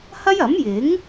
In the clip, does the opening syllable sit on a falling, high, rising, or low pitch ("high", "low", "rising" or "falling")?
high